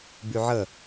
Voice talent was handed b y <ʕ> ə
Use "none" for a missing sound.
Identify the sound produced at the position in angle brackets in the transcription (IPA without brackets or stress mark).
ʕ